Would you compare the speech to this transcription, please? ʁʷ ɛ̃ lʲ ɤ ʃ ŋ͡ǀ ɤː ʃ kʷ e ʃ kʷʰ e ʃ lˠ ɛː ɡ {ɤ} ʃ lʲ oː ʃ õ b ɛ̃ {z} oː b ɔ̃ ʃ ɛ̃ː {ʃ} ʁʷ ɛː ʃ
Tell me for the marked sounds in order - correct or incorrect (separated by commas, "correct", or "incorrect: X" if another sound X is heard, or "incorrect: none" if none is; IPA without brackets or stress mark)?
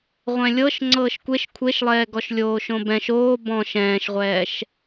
incorrect: ɔ, incorrect: ʃ, correct